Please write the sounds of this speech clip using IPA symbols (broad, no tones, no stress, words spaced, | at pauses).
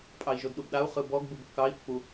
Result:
pʼɑi̯ʒodɗubɗau̯ χɯbɔɡ bubkːɑi̯ pːu